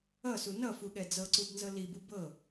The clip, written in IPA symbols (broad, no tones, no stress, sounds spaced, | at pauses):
ʌ s u n ʌ f u ɠ ɛ d͡z ɤ ǀ u b n z ɤ l i b u b ɤ